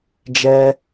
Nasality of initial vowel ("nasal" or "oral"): oral